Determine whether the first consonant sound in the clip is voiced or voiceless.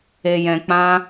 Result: voiced